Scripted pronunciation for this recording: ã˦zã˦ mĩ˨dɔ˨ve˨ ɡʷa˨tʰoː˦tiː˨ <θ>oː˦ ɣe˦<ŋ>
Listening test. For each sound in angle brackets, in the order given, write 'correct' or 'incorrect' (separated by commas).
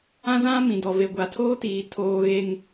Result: incorrect, correct